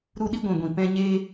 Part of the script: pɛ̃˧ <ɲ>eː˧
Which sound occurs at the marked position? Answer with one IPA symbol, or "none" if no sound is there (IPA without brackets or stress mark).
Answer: ɲ